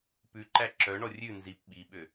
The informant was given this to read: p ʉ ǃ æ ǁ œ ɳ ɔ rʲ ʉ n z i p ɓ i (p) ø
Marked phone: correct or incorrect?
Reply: incorrect